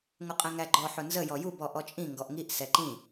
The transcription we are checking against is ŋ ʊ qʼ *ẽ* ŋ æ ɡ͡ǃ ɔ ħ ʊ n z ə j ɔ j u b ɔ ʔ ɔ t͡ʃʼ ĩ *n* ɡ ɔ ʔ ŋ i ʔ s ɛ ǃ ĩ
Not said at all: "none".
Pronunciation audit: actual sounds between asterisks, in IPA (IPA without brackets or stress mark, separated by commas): ɛ̃, ŋ